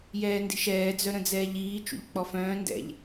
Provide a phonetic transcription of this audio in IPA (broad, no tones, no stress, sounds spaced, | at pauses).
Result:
j ɛː n d i̤ ʃ ɛː d͡z œ ɾ ə̃ d͡z ɛː ʎ iː t͡ʃ ṵ ʎ k͡p ɔ f œ̃ː n d ɛ̰ ʎ